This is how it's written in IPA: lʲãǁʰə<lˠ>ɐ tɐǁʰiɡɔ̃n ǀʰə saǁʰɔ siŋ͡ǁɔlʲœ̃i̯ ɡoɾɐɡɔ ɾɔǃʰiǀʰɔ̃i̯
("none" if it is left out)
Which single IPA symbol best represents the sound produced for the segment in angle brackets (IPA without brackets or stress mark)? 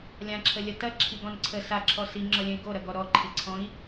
lʲ